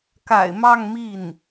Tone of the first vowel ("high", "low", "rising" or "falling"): low